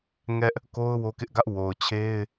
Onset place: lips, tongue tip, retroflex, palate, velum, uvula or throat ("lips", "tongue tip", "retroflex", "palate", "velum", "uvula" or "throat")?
velum